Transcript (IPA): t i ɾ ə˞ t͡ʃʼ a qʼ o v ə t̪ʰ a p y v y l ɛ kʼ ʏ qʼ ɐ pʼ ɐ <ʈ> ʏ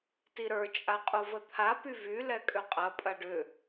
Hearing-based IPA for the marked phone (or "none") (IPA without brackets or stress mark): ɖ